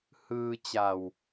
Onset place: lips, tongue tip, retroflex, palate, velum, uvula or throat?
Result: throat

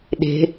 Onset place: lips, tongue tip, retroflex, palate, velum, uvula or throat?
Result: tongue tip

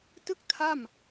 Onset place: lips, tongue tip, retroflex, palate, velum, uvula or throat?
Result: tongue tip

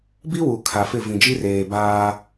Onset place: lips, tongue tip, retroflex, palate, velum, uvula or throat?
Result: lips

